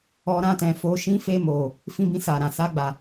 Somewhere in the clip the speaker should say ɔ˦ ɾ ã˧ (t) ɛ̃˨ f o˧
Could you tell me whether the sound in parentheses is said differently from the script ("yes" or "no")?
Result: no